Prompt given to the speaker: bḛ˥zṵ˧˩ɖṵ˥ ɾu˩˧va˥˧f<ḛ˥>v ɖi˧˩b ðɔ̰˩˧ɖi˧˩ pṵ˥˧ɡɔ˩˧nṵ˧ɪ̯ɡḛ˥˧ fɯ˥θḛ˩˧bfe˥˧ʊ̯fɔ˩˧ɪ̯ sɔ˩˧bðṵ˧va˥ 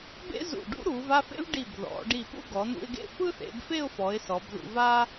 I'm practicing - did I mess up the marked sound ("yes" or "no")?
no